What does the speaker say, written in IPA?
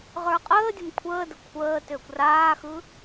ʁ ə˞ qʼ əː dʲ ə m kʷʰ əː d ə kʷʰ əː t ʏː kʷ r aː x ɯ

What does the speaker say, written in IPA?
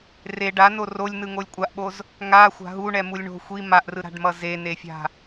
r e ɖ a n o r o lʲ n ɯ ŋ o lʲ kʷʼ a ʔ ɓ o z | ŋ a xʷ a̤ ɦ u ɳ ɛ m u lʲ ɳ o̤ xʷ i m a ʔ r ɯ ɾ a̤ ɖ m ʌ z e n e fʲ a̤

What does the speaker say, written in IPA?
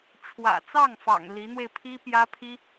ʈ͡ʂʰ w ä̰˨˩ t͡s ɑ˥˩ ŋ f ɑ̰˨˩ ŋ l i˧˥ n̪ w e˧ ɪ̯ pʰ i˥ p j ä˥ pʰ i˥

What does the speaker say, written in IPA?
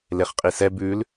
l e χ qʼ i s ɛ b ʉ l

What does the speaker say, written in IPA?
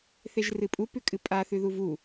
θ e ʒ r ɨ pʼ u p ʉ kʼ ɨ pʼ a θ ʉ ð u v u

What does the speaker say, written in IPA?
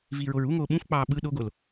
v iː ɹ o ɹ u ŋ oː ɓ ũ f k͡p ɑː ɓ ɯ ɗ o ɡ o l

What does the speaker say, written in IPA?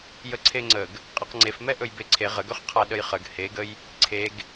j ə ǀʰ e ŋ͡ǀ ə ɡ | qʼ e q ŋ͡ǀ e f m ɛ ʔ ɵ j b e ǀʰ e ʁ ə ɡ ɵ χ qʰ a ɗ ə j χ ə ɡ h e ɡ ə j | ǀʰ e ɡ

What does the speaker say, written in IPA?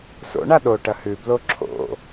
s o̰ ɳ a ɗ o ʈ ɐ h ʉ b l o ǁʰ o̰

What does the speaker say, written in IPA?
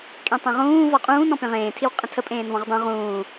kʼ ẽ tˤ ẽ ʁ ũː v ɔ qʼ ũː n ɔ̃ p ẽ ʁ ẽː tʰ i w qʼ ə̃ tʰ ə pʼ ẽː n v ɔ̃ ʁ dˤ ũ ʁ ũː

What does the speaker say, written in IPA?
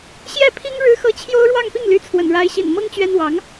ɕ j ɛ˥˩ pʰ i˥ ŋ ɻ ɻ̩˥ x ɤ˥˩ t͡ɕʰ j o˥ ʊ̯ ɻ w ɑ˥˧ ŋ p i˥˩ ŋ l y˧˥ t͡sʰ w ə̰˨˩ n ɻ a˧˥ ɪ̯ ɕ ḭ˨˩ n m ɤ˥ ŋ t͡ɕ ɥ ɛ˥ n w ɑ˧˥ ŋ

